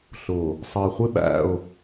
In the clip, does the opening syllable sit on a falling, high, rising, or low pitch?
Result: low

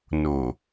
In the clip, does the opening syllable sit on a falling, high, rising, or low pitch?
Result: low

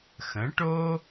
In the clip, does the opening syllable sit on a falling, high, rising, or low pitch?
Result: rising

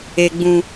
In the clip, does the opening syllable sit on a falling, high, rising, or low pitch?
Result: high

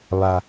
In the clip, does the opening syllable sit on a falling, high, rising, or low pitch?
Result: low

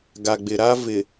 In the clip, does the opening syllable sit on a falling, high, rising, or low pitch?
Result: low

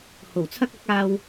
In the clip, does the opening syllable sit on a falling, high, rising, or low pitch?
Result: low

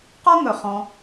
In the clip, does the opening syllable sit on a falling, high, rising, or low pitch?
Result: high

